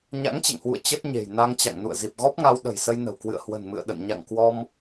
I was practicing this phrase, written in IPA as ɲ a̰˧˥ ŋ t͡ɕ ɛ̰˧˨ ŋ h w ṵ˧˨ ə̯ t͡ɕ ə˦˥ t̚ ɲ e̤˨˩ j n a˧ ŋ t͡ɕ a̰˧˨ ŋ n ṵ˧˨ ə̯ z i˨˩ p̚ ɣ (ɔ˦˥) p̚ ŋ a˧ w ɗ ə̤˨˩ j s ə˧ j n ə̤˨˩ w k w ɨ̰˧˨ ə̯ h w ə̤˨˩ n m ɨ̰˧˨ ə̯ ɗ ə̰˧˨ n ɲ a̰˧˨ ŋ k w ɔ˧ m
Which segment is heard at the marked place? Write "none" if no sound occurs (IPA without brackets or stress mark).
ɔ˦˥